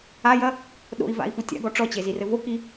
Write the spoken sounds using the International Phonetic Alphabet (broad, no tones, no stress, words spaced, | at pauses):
ajɐ | ɗo̰i̯va̰i̯fu tʲa̰ɡɔ ʈ͡ʂɔt͡ɕezirɘ voki